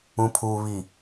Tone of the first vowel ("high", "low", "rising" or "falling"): low